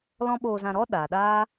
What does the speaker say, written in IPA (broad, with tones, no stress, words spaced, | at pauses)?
lɔ̃˦ ɓoː˧zã˧ɾɔ˦ ɗaː˨ɗaː˦